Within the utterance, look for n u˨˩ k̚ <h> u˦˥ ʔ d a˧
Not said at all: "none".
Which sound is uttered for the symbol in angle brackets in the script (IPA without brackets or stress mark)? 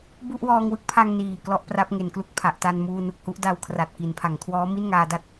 h